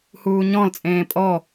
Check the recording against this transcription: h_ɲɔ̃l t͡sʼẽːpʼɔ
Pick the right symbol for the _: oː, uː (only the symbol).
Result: uː